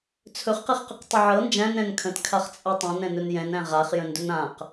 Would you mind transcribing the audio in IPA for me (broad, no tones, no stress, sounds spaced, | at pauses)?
t͡sʰ ɵ χ q ɛ χ q ə q tˤ ə ʕ ɤ n d͡ʒ æ̃ n ɾ ɛ̃ n kʰ ə̃ t kʰ a χ t͡sʼ ɤ tˤ ɛ̃ n ɛ̃ n ɵ n j ɛ̃ n æ̃ ʁ a χ j ə̃ n d ɵ n ã q